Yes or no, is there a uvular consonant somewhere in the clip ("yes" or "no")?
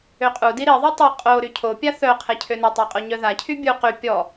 yes